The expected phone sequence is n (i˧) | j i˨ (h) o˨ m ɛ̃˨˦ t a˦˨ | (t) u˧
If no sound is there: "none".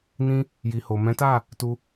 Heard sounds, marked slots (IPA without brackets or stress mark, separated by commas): ĩ˧, h, t